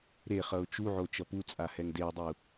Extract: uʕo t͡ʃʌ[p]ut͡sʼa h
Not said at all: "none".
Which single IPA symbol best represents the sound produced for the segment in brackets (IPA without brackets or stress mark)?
p